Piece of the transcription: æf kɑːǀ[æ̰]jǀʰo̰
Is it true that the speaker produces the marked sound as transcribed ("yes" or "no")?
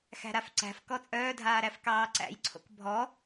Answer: yes